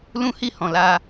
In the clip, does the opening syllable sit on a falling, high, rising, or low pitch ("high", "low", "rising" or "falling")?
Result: high